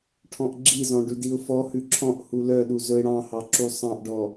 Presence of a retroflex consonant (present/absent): present